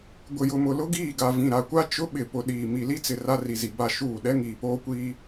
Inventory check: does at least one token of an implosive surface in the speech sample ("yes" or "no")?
yes